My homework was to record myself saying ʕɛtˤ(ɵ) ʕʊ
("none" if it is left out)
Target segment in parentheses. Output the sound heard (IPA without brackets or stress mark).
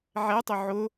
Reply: ɵ